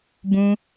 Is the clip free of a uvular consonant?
yes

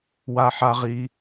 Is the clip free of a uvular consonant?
no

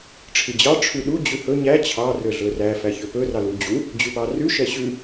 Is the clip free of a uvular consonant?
yes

